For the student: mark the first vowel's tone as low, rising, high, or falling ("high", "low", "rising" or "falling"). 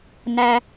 high